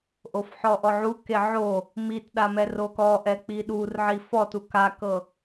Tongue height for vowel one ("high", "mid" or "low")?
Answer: mid